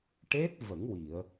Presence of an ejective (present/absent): absent